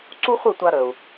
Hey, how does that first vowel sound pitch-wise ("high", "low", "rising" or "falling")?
high